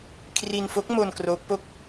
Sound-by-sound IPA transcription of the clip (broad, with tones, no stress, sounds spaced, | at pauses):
kʰ r i˧ n f o˦˥ k̚ m o˧ n k r oː˦˥ k̚ p o˥˩ k̚